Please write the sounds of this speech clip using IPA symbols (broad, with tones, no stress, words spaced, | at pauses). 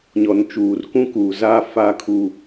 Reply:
ɲɔ˨nt͡ʃuː˨rkũ˦kuː˨ za˦˨ faː˦kʰu˦